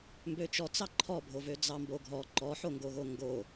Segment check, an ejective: absent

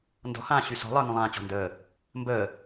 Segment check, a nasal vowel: present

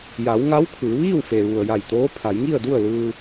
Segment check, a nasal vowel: absent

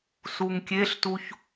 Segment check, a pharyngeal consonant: absent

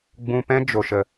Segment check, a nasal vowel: present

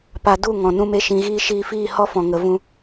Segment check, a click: absent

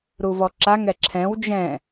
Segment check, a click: present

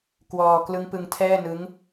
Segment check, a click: absent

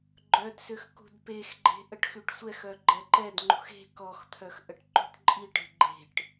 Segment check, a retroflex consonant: present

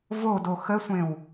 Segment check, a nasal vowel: present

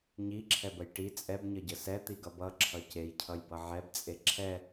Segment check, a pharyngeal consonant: present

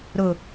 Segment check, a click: absent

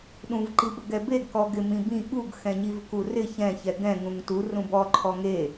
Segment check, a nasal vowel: present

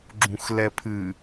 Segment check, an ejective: absent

